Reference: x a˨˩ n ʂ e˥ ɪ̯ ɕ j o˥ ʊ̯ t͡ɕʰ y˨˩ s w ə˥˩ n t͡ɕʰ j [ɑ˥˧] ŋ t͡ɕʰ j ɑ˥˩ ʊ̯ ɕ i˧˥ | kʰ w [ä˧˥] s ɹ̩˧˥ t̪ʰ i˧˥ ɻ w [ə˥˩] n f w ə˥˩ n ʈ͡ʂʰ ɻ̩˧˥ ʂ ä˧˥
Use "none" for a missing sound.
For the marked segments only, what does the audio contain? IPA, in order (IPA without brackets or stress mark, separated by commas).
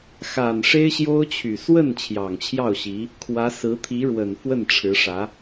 ɑ˨˩, ä˧˥, ə˨˩